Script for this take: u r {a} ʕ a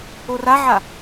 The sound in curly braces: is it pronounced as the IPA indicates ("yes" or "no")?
yes